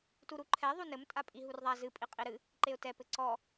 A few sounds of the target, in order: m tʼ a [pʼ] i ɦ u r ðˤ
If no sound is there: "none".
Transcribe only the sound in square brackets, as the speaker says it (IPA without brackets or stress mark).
pʼ